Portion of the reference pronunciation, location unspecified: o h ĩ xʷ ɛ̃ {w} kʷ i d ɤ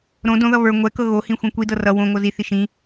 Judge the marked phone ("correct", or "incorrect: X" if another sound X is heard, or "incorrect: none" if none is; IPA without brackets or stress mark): incorrect: none